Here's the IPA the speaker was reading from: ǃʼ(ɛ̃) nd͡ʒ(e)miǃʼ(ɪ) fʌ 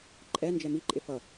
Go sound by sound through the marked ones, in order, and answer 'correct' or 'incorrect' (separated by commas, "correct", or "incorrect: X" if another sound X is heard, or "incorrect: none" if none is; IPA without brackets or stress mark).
incorrect: ɛ, incorrect: ɛ, correct